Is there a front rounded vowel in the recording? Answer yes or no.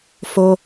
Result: no